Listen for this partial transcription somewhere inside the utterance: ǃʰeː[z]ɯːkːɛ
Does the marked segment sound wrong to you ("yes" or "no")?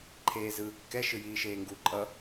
no